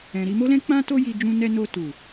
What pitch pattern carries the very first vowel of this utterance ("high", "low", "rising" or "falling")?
low